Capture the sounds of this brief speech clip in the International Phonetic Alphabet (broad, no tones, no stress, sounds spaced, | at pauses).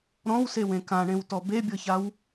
ɾ ɔ̃ w s e w ẽ k ã ɳ ẽ w t ɔ b e bʲ ɤ ç a w